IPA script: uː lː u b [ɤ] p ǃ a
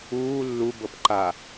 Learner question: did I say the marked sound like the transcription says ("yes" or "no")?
yes